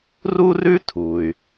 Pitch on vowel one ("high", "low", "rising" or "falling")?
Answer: high